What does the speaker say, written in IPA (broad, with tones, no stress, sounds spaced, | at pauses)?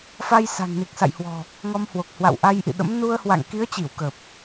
f a˧ j s a̤˨˩ ŋ n i˨˩ k̚ s a̰˧˨ j h w ɔ̤˨˩ | ŋ ɔ˧ m h w o˨˩ k̚ h w a̰˧˨ w ʔ a˧ j ʔ ḭ˧˨ ɗ ə̰˧˥ m n u˧ ə̯ h w a̰˧˨ ŋ k i˨˦ ə̯ t͡ɕ i˧˩ w k ə˨˩ p̚